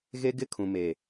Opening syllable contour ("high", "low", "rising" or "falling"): high